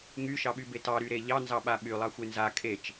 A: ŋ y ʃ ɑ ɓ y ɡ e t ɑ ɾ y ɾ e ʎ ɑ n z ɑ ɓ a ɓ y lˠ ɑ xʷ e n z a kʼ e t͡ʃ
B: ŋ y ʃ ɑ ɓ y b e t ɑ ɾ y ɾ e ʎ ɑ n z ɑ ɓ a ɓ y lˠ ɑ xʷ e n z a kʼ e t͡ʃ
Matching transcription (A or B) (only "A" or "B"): B